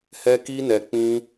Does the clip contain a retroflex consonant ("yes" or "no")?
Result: no